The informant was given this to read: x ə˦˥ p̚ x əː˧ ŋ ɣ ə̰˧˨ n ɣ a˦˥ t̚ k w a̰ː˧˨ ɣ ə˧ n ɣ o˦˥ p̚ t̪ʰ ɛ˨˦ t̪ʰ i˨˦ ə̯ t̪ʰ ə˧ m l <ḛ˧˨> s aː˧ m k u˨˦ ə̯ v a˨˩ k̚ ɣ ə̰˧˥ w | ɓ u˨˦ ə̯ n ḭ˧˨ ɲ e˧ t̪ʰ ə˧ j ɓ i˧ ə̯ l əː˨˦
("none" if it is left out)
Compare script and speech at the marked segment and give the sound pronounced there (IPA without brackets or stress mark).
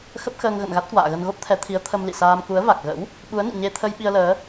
ḭ˧˨